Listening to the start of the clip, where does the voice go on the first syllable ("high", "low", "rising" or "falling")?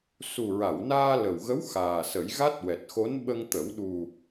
low